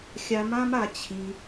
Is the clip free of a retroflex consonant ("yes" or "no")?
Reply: yes